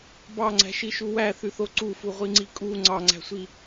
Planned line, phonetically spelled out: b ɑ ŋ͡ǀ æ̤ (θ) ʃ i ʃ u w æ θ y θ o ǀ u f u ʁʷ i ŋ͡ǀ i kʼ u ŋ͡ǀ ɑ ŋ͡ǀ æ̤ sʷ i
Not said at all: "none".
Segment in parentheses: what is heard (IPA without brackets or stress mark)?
none